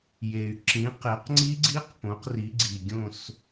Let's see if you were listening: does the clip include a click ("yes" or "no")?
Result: yes